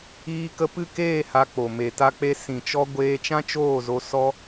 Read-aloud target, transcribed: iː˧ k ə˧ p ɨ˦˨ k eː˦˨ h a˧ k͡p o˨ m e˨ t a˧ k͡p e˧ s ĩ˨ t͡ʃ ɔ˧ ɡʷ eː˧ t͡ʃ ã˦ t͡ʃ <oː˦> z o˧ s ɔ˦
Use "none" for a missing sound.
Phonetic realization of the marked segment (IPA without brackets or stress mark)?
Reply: oː˦˨